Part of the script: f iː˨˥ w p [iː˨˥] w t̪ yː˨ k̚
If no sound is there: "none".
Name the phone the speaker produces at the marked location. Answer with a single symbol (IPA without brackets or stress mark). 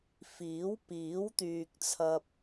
iː˨˥